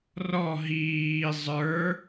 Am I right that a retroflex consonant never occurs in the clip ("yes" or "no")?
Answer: yes